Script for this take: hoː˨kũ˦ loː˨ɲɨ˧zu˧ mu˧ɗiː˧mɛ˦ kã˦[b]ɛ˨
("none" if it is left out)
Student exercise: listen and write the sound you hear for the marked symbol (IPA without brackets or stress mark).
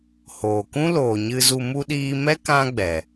ɡ͡b